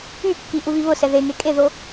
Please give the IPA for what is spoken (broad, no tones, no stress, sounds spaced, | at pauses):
y kː i ʔ u β i β ʊ s ɛ ð e ŋ e kʼ e ð o